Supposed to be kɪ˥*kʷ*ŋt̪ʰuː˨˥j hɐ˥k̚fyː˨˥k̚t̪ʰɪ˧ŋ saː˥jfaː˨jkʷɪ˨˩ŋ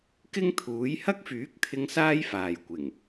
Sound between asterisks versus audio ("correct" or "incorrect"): incorrect